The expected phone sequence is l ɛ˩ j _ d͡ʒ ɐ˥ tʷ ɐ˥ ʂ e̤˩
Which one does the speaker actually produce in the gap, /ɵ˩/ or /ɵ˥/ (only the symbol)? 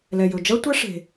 ɵ˩